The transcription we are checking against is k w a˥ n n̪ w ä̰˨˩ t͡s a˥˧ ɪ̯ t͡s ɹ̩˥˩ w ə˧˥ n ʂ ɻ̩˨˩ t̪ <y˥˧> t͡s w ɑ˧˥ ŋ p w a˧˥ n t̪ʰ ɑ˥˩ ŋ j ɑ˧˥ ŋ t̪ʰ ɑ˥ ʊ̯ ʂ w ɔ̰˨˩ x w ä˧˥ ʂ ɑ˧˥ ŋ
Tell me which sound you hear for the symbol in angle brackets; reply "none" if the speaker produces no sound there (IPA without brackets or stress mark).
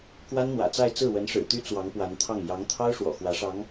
y˥